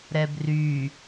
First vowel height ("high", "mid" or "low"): mid